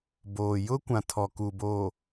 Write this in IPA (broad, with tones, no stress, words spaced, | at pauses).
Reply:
boː˨ jʊ˦kʷã˨ tʰɔ˨ ku˨bo˨